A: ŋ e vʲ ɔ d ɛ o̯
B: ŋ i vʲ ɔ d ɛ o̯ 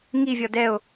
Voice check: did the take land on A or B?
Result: B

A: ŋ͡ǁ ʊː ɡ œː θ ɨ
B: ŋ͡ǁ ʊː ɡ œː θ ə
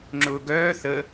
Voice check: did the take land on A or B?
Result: B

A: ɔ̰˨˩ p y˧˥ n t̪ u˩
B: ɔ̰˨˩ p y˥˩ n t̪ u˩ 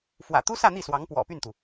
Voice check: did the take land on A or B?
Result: B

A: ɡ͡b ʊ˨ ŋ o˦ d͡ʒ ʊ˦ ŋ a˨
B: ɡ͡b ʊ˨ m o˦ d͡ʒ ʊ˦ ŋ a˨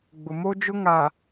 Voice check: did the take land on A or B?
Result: B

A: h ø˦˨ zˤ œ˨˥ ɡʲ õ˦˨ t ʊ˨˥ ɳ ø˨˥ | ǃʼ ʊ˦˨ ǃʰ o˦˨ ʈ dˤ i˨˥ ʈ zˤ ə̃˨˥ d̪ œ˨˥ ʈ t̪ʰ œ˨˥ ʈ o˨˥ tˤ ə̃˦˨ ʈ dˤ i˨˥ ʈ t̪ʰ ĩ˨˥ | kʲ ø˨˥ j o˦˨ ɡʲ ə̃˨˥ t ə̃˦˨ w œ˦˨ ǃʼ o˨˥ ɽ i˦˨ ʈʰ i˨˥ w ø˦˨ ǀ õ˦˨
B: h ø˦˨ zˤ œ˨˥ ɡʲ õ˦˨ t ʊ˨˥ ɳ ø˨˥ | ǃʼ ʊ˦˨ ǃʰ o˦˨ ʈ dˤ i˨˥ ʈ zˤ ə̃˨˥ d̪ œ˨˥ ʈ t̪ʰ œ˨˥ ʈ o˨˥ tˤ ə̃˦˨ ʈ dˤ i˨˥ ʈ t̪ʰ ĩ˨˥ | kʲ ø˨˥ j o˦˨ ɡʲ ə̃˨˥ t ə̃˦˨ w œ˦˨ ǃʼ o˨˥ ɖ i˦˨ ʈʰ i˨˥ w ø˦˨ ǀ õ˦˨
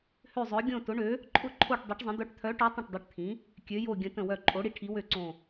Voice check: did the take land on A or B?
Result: A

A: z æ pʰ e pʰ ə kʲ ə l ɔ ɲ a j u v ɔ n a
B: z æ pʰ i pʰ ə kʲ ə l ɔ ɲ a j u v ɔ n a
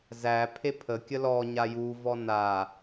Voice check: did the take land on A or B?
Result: A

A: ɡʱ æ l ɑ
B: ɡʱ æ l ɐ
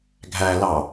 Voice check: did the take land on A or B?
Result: A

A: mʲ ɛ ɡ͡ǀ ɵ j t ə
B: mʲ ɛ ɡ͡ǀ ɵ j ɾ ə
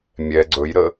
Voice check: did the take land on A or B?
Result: B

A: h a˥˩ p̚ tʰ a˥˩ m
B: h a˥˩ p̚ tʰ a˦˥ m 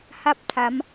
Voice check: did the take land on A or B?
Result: B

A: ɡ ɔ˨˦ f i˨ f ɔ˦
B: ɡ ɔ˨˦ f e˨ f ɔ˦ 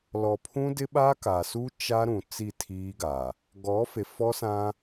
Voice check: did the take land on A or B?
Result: B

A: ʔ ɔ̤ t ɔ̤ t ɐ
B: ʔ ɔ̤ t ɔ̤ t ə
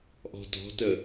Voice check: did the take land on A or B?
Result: B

